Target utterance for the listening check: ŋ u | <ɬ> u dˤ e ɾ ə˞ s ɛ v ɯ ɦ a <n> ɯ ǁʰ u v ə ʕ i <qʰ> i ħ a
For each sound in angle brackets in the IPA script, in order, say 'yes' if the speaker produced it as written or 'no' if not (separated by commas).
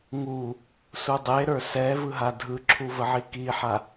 no, no, no